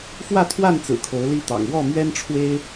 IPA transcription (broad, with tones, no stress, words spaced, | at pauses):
fwä˥˨t̪ʰwa˥˨n t͡sɹ̩˨˩kʰo˨˦ʊ̯ li˦t̪ɑ̰˨˩ŋ wɔ˥˨mɥɛ˦nʈ͡ʂʰwe˦ɪ̯